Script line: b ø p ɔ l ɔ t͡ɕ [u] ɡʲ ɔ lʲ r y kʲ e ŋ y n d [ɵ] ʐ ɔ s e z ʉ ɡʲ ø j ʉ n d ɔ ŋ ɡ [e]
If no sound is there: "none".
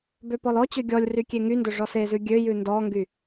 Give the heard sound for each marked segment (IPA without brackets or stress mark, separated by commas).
ø, ɵ, y